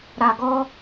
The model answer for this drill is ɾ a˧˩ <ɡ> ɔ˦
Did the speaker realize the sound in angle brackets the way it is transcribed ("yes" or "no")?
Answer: yes